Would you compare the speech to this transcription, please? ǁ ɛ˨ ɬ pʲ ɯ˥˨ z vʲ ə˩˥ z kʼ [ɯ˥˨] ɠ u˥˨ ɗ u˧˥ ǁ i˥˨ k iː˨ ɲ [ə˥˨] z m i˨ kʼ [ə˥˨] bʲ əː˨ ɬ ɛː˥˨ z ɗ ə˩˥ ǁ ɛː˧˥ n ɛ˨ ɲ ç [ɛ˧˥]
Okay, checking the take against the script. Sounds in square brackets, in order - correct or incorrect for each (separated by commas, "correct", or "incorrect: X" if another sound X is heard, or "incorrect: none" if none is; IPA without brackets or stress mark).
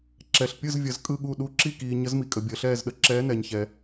correct, incorrect: ə˧˥, incorrect: ə˨, incorrect: ɛ˨